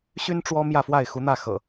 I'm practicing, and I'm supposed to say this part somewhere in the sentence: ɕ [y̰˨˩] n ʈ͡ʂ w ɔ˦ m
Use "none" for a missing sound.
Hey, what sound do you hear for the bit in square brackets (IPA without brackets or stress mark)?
y˦